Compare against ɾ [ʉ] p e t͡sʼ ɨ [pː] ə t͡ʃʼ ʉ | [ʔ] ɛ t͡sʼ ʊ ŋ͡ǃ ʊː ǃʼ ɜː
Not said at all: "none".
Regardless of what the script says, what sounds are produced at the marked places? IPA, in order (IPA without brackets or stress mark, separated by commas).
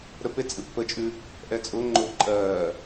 ə, pː, ʔ